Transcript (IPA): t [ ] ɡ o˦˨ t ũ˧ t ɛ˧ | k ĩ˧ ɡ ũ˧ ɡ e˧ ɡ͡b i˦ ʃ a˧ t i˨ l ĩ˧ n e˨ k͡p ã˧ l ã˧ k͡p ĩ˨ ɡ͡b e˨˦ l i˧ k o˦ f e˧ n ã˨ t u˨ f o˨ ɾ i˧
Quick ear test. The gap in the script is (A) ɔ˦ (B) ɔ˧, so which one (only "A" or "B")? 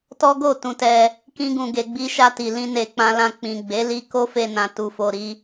A